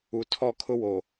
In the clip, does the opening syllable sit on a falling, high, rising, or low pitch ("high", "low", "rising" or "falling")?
low